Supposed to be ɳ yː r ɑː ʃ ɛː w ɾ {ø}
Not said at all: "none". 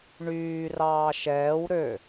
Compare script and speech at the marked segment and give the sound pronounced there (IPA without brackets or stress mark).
ø